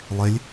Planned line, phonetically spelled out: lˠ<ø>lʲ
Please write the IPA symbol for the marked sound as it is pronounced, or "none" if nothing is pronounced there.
e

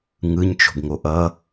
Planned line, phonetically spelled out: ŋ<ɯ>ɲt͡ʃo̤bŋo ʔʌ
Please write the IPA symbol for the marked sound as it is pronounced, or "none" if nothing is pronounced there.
ɯ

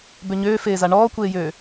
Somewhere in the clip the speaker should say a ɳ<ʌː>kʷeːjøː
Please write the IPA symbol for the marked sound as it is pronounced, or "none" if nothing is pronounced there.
ɔː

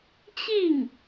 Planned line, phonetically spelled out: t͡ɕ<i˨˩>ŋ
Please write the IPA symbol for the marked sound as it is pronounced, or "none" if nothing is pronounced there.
i˥˩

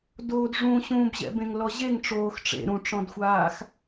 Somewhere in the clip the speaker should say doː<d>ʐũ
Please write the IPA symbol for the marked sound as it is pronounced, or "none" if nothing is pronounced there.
d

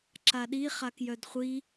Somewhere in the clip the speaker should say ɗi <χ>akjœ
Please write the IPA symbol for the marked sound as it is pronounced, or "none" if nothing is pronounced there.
χ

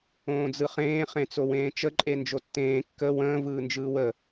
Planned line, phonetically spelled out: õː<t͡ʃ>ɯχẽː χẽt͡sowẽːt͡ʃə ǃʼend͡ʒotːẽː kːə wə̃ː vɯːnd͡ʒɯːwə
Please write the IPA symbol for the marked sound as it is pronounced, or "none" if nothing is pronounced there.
d͡z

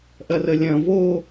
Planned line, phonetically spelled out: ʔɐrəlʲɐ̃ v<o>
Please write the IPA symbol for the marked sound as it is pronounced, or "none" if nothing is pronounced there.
o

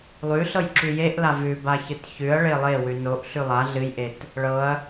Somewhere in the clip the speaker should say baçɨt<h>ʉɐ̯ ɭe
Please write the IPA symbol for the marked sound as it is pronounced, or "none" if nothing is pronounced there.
ç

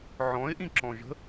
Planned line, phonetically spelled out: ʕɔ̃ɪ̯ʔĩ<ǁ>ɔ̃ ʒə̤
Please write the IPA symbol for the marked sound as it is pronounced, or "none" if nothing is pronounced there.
ǁ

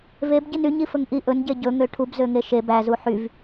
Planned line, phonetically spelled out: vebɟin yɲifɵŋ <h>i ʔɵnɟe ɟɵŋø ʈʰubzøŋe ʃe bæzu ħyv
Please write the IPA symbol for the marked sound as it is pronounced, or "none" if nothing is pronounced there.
ʔ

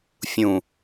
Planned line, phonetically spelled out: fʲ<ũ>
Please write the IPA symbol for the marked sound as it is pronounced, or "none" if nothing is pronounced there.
ũ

